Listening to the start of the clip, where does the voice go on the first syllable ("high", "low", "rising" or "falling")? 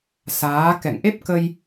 rising